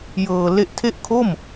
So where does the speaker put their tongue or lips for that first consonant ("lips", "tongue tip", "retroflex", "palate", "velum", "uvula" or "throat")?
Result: palate